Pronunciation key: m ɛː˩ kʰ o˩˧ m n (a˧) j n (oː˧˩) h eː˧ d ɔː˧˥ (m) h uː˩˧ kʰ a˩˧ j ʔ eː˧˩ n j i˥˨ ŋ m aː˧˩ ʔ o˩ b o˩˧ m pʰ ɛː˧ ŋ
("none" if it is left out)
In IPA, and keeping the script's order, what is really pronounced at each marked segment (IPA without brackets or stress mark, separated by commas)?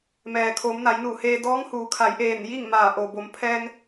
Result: a˩˧, uː˧˩, ŋ